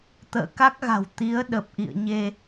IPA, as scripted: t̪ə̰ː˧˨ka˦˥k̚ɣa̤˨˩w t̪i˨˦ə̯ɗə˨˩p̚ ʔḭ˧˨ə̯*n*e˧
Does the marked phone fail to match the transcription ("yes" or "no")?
yes